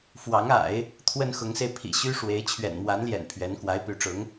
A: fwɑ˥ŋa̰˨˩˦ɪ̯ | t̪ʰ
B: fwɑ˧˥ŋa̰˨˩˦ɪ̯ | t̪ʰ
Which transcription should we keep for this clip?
B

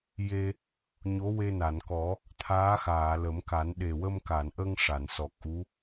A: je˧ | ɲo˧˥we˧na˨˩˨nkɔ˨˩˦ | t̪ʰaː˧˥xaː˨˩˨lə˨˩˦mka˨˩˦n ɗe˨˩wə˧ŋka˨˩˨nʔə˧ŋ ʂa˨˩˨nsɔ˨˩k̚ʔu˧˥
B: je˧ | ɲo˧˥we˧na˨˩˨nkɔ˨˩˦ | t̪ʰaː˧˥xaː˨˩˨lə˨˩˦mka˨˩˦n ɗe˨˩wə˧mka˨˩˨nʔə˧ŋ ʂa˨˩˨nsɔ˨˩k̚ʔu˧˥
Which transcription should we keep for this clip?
B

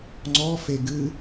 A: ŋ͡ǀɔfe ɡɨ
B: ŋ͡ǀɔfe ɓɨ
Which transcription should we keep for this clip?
A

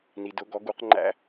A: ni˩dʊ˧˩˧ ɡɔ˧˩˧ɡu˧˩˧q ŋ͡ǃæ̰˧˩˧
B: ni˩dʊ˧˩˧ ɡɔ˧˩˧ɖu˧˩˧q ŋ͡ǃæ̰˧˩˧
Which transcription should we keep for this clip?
A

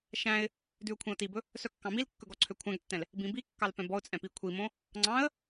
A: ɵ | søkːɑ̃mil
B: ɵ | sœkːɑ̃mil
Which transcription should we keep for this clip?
B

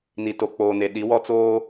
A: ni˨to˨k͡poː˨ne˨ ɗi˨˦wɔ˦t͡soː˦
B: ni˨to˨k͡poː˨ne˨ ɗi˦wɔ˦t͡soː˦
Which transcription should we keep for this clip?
A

